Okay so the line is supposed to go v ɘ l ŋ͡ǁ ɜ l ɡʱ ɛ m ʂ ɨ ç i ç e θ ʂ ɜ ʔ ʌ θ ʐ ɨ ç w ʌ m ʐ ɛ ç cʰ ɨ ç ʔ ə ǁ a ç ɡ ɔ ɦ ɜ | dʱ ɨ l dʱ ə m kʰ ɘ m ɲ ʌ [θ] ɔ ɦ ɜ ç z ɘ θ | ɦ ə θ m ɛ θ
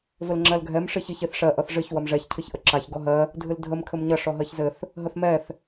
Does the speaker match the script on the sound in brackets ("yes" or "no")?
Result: no